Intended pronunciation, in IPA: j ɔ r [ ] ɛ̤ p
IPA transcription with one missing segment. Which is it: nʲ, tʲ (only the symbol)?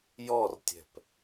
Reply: tʲ